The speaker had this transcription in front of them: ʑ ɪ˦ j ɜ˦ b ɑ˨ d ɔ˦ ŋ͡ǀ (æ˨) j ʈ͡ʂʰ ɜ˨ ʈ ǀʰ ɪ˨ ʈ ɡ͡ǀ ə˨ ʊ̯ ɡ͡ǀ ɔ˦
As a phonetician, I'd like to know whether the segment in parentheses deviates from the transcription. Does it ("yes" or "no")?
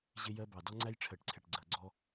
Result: yes